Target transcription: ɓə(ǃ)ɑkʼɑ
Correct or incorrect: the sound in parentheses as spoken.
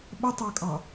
incorrect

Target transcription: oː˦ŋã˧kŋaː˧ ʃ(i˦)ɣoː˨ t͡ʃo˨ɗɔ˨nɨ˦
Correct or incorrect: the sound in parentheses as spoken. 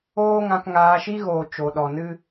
correct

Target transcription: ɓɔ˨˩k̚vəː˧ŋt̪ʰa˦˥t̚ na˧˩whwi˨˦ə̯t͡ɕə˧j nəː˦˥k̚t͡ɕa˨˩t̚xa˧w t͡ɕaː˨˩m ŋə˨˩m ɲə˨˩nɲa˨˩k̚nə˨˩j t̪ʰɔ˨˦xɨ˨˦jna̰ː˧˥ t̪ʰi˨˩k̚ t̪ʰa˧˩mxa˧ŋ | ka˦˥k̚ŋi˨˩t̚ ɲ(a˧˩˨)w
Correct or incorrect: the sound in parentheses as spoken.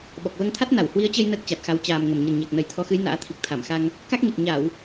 correct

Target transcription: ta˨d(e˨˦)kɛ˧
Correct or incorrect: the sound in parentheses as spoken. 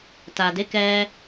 correct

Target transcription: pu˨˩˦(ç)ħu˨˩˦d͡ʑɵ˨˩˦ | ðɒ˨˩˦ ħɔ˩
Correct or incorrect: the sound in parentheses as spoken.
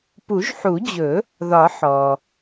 incorrect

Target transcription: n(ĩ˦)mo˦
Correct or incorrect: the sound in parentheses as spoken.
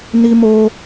incorrect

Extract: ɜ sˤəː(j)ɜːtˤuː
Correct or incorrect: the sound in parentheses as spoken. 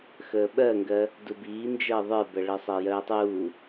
correct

